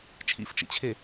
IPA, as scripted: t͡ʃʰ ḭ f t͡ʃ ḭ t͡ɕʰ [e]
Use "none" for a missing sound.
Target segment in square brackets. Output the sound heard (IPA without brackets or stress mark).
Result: e